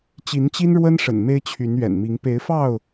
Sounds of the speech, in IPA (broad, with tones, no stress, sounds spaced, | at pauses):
t͡ɕ i˨˦ n t͡ɕ i˦ n ɻ w ə˦ n ʂ ə̰˨˩ n m e˦ ɪ̯ t͡ɕʰ y˨˦ n ɥ ɛ̰˨˩ n m i˨˦ ŋ p e˨˦ ɪ̯ f ɑ˥˨ ʊ̯